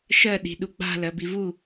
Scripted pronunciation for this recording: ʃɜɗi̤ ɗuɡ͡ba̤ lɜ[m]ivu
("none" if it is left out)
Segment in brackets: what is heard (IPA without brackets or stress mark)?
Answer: b